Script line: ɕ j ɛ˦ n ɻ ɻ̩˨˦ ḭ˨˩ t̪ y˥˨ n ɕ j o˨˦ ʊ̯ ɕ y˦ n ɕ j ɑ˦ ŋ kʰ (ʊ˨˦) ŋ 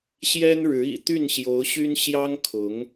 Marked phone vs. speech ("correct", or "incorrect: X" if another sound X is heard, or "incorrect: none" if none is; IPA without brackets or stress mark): correct